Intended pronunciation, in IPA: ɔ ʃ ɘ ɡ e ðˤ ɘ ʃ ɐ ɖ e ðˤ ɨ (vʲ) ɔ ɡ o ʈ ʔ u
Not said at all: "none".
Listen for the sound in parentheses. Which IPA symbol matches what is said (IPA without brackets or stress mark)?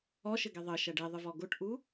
v